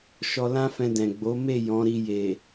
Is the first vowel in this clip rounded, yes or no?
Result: yes